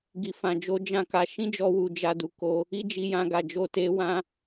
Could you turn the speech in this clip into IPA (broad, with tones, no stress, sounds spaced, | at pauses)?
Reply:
ɡ i˨ f ã˨ d͡ʒ o˧ d͡ʒ ã˦ k a˧ ʃ ĩ˦ d͡ʒ ɔ˧ w u˨ d͡ʒ a˧ d u˨ k o˧ | i˦ d͡ʒ i˧ j ã˧ ɡ a˨ d͡ʒ o˧ t e˧ w ã˧